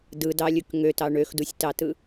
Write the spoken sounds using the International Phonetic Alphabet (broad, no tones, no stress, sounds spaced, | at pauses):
d ɯ d ɑ lʲ ɯ k ŋ ø t ɑ ɳ ø x d u sʲ t ɑ t ɯ